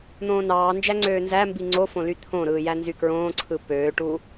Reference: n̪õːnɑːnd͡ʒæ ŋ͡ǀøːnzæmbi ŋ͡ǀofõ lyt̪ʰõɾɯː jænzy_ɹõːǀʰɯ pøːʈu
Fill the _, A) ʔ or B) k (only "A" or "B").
B